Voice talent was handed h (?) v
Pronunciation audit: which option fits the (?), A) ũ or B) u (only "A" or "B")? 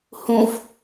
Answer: A